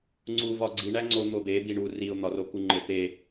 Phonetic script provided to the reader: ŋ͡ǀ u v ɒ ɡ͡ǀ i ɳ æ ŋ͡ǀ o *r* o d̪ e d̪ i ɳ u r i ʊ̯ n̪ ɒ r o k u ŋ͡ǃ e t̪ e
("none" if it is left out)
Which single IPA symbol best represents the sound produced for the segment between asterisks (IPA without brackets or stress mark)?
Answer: n̪